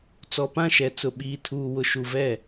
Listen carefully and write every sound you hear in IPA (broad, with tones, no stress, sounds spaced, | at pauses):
t͡s ɔ˨ p ã˦˨ ʃ ɛ˨ t͡s ʊ˨ ɓ iː˨ tʰ uː˨ w ʊ˨ ʃ u˨ v ɛ˦˨